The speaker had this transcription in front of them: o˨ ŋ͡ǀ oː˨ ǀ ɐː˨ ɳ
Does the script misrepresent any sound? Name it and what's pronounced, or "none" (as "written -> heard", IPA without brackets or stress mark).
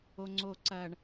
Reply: none